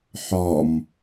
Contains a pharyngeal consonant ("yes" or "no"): yes